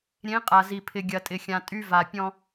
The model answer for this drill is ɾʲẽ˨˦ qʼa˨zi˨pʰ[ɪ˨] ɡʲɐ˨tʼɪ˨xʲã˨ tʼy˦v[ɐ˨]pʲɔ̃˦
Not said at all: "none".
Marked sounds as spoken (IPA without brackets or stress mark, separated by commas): ɪ˨, a˨